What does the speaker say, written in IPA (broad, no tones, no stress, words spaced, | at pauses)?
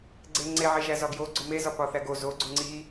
ɡ͡ǀeŋ͡ǀeʕe ʒæzɒɡjo ɡ͡ǀomezɒ pɒθæɡo zo ɡ͡ǀuŋ͡ǀi